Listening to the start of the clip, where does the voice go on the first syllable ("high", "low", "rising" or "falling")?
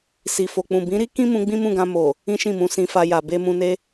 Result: low